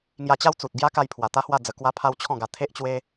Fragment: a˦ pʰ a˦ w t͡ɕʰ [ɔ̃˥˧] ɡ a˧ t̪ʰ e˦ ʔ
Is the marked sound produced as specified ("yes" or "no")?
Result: yes